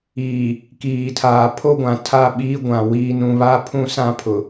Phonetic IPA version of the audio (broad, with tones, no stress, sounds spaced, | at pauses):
iː˨ | k iː˨ tʰ aː˨ pʰ o˦ ɡʷ ã˨ tʰ a˦˨ ɓ iː˦ ɡʷ ã˨ w iː˨ n ũ˨ β a˦ pʰ ũ˦ s ã˦ pʰ ʊ˨